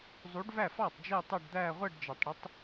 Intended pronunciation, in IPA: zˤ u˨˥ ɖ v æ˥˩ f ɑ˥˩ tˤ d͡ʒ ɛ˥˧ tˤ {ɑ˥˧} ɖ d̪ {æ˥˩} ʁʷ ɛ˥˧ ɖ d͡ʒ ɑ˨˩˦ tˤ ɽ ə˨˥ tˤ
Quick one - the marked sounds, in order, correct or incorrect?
correct, incorrect: æ˥˧

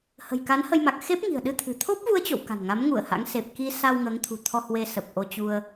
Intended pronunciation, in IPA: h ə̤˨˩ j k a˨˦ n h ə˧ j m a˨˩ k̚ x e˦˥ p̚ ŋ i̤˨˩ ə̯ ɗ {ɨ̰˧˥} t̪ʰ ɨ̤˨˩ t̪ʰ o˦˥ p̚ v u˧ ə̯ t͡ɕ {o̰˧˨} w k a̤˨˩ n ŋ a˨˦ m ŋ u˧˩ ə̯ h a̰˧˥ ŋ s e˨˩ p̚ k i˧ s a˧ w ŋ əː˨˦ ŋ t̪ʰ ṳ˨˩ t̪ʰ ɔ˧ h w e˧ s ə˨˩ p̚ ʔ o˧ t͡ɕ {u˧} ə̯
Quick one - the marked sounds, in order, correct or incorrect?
incorrect: ɨ˧, correct, correct

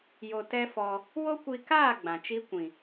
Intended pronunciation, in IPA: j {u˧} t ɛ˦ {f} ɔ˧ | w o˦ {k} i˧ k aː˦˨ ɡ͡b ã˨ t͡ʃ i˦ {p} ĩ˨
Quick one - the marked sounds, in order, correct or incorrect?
incorrect: o˧, correct, incorrect: kʷ, incorrect: kʷ

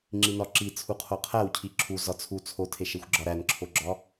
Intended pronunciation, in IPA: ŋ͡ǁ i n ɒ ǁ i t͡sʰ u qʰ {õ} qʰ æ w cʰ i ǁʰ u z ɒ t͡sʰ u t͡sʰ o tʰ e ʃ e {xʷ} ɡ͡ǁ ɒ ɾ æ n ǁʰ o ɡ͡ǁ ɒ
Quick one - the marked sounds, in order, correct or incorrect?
incorrect: o, correct

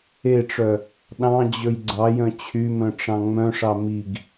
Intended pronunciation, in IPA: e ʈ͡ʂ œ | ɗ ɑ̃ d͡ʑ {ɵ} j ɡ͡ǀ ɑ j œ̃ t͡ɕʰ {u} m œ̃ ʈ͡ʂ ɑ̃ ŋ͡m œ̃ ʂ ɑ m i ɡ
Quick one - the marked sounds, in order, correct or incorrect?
correct, incorrect: y

